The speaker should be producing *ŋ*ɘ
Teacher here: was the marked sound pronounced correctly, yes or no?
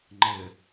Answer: no